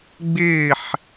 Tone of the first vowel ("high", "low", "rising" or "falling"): falling